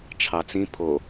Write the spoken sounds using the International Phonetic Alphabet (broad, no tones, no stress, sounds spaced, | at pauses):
t͡ʃʰ ɑ t͡s ĩ pʰ o